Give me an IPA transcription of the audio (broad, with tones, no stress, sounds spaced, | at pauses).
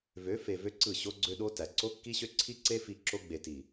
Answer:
v ø˨˦ f e˨ v ø˧ ǀ ɯ˦˨ ɕ o˦ ɡ͡ǀ ø˦ ɗ o˦ t æ˨ ǀ o˦ kː i˦ ɕ ø˦ ǀʰ i˦ ǀ e˦ f i˧ ǁ o˧ ɡ͡b e˨ t i˨